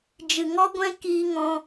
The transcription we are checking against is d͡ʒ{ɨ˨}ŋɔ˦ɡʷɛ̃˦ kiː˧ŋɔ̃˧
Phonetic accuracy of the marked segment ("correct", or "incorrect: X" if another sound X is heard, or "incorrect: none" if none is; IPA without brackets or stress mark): correct